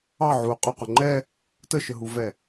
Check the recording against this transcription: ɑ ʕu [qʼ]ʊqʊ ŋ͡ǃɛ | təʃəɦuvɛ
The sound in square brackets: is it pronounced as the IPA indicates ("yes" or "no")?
yes